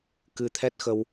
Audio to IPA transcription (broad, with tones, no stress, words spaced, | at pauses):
kɨ˧t̪ʰɛ˦˥t̚xə˧w